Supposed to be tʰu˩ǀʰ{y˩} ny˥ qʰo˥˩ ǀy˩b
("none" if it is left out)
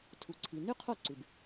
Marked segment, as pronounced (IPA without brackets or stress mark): i˩